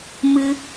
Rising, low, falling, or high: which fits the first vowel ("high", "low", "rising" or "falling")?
high